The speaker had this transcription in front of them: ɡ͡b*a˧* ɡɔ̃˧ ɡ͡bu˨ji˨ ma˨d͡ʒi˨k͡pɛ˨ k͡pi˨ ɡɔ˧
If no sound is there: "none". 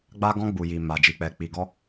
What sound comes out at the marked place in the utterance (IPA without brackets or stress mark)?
a˦